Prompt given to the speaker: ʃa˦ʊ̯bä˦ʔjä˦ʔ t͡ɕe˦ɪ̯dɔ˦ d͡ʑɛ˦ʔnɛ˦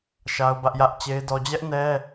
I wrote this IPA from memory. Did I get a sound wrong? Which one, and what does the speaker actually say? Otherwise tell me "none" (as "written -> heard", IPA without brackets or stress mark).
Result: none